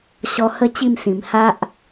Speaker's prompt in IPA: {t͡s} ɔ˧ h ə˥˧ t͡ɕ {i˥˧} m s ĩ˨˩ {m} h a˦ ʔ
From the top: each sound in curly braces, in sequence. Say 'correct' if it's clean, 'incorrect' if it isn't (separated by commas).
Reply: incorrect, correct, correct